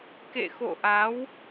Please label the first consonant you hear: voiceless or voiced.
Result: voiceless